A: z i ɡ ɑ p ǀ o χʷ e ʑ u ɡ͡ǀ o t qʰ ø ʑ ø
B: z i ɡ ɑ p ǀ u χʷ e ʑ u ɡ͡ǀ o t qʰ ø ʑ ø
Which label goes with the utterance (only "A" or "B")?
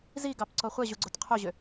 A